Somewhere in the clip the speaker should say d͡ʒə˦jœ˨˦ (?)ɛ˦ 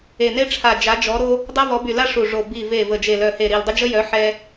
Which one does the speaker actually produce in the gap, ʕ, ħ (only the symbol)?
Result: ħ